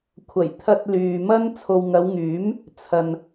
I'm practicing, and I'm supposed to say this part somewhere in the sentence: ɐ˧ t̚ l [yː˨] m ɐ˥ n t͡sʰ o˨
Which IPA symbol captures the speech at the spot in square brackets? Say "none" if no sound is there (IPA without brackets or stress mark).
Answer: yː˨